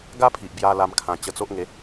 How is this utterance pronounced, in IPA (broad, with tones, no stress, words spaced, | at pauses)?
ɡa˦pʰi˨ʔ bja˦ la˦mkʰã˧ t͡ɕə˧t͡so˦ʔŋe˨˦